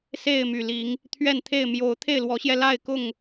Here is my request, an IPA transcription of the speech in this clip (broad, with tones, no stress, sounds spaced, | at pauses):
s e˥˨ ɪ̯ m y˨˩ l i˨˦ ŋ | t̪ʰ ɥ ɛ˥˨ n t̪ʰ e˥˨ ɪ̯ m j o˨˦ ʊ̯ t̪ʰ e˥˨ ɪ̯ l w ɔ˨˦ ɕ j ɛ˧ l a˥˨ ɪ̯ k ʊ˥˨ ŋ